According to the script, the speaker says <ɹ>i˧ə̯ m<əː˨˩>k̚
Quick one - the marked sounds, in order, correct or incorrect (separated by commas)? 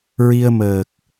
correct, correct